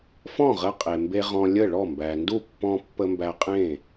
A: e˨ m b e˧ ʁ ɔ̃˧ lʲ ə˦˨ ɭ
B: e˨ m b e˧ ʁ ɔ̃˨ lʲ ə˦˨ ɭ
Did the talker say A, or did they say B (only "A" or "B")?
A